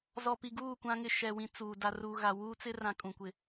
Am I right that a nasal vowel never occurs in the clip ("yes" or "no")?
no